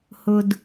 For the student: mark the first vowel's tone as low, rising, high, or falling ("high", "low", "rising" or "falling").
low